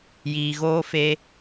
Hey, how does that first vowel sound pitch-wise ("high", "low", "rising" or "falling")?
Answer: low